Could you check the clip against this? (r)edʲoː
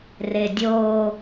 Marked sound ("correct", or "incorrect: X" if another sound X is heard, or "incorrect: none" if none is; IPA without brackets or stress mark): correct